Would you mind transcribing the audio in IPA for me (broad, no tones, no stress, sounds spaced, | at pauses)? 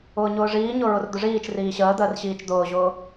ʊː ɲ ʊː ʐ iː ɲ ʊ ɹ ʊ r d̪ ʊ ʐ iː t͡ʃ r iː ɕ əː d̪ əː r ɕ iː t͡ʃ d̪ ʊː ʑ ʊː